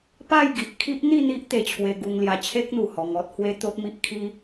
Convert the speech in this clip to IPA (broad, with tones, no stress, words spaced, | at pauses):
pa˥˧jɡi˨ʔ kʰi˦ʔn̪i˥˧n̪i˦ʔ t̪e˧t͡ɕʰwe˧ɡu˧ŋ lja˧t͡ɕʰe˦k̚n̪u˨˩ hɔ˧ŋɔ˦t̚hwe˦ t̪o˦t̚mi˦ʔkʰi˦